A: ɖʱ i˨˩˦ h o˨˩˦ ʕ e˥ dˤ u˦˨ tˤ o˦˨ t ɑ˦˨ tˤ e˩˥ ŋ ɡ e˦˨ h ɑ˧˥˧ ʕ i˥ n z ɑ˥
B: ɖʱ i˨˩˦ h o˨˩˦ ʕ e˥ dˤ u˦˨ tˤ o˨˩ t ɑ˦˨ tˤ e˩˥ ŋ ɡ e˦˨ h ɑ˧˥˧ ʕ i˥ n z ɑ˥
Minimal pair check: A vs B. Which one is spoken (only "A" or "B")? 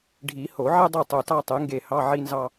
B